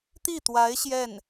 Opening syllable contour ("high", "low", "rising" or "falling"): falling